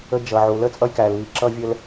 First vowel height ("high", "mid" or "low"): mid